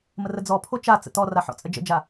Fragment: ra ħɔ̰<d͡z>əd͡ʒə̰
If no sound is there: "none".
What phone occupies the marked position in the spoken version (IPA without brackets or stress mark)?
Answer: t͡sʼ